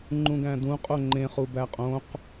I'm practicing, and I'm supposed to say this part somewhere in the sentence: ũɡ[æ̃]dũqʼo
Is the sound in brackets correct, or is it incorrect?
correct